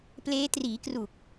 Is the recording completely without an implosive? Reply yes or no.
yes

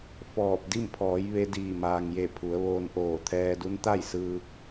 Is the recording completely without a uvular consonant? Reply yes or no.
yes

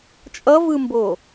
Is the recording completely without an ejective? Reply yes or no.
no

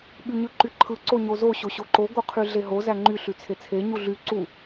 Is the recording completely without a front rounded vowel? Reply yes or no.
no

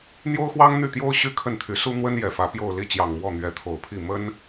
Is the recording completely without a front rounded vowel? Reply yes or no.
no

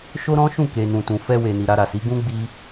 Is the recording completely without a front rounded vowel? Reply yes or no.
yes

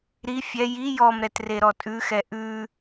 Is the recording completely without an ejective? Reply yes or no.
no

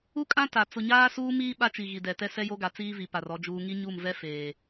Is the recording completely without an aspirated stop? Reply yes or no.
yes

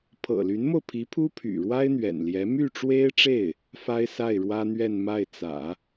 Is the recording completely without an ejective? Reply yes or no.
yes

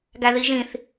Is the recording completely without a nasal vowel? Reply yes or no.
no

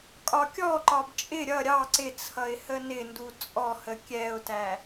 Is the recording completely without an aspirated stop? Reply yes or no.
no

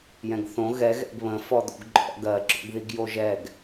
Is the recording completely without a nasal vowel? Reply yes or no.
no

